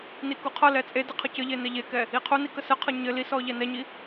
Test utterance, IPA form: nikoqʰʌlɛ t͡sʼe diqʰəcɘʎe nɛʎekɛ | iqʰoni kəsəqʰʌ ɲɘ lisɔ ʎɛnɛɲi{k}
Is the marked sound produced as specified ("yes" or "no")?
no